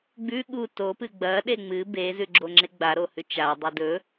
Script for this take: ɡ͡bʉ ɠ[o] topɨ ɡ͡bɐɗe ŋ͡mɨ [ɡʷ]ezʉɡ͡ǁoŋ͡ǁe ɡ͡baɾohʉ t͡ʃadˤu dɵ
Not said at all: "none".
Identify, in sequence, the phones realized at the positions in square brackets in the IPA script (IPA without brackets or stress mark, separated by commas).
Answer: u, b